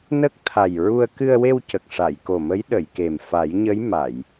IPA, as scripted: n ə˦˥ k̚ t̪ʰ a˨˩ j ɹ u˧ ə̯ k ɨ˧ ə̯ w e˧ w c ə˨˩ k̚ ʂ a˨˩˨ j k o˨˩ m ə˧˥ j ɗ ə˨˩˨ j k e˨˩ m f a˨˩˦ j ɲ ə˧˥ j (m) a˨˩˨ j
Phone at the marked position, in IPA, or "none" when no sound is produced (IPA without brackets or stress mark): m